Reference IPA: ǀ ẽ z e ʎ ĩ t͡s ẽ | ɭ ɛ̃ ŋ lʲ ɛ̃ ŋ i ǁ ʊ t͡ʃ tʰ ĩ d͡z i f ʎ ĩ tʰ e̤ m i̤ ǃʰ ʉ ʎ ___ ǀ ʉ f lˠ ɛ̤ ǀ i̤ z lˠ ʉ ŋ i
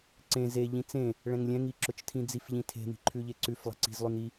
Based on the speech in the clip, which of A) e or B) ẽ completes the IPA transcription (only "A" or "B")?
A